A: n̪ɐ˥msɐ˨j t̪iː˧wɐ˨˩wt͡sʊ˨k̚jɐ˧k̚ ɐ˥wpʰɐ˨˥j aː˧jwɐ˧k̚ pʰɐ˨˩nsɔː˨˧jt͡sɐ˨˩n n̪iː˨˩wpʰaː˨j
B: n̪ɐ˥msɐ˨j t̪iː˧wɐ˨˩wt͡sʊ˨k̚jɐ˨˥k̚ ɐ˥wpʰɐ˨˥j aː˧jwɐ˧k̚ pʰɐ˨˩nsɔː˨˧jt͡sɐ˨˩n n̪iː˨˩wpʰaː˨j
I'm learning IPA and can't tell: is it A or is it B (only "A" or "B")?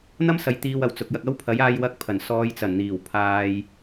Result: A